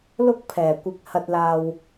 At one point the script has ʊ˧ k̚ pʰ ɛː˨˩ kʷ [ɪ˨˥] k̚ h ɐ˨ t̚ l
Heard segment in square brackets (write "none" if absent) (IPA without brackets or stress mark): ɪ˨